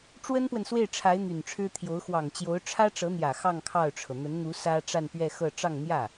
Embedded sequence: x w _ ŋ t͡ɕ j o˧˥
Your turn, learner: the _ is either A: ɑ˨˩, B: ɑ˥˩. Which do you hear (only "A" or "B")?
A